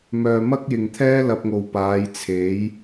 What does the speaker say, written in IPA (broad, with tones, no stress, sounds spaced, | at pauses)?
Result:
m œː˨ m ɐ˥ k̚ j ɪ˨ ŋ t̪ʰ ɛː˥ l ɐ˧ p̚ ŋ o˨ w p aː˨˧ j t͡sʰ e˨˥ j